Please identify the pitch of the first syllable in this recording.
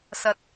low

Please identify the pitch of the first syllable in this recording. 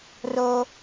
high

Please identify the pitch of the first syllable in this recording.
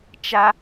high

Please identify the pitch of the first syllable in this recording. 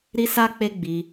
high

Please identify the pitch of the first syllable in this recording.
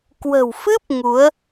low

